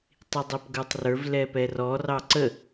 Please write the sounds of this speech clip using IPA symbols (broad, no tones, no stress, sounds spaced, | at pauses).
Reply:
tˤ i dˤ ɛ p ɡ ə˞ tˤ r ə˞ v l ɛ p ɛ r ɔ r ɑ ǀ ə